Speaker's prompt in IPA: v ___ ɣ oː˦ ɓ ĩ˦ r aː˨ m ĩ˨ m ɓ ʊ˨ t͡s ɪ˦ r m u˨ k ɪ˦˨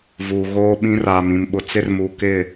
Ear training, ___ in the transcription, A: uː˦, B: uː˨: B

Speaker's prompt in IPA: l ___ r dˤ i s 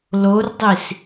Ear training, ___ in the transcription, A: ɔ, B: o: B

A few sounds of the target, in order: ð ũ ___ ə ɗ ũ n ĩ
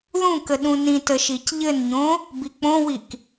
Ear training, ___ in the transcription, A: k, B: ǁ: A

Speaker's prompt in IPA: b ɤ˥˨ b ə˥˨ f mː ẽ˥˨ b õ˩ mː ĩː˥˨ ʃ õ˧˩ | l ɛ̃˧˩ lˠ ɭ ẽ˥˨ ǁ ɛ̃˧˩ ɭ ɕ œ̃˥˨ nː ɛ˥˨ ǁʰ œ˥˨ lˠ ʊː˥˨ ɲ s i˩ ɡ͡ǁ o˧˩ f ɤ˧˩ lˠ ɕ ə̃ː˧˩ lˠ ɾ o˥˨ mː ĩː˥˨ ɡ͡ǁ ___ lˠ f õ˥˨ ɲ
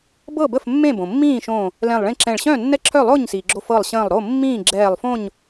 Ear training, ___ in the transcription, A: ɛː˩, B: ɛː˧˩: B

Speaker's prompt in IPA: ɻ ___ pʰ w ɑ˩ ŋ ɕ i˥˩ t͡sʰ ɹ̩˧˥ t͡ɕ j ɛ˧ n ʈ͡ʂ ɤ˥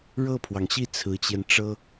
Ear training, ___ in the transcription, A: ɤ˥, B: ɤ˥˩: B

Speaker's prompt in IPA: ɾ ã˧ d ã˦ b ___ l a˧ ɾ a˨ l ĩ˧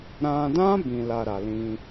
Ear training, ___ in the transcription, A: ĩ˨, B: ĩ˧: B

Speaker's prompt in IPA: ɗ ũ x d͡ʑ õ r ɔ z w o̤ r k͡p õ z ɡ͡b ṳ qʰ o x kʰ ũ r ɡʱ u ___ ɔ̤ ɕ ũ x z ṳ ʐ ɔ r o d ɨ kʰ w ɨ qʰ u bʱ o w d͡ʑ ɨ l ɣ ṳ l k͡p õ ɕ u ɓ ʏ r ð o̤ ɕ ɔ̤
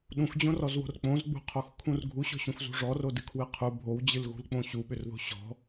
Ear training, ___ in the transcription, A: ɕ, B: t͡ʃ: A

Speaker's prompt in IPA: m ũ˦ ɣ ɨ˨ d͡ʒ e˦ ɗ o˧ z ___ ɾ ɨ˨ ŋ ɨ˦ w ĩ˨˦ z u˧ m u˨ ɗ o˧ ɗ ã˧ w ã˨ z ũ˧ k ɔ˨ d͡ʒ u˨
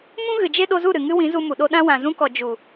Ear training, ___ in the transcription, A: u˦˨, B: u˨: A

